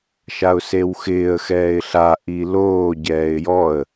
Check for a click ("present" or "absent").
absent